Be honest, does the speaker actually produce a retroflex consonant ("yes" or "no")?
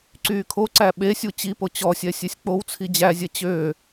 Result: no